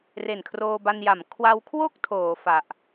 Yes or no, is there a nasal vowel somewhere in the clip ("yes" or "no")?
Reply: no